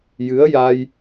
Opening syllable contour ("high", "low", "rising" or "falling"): rising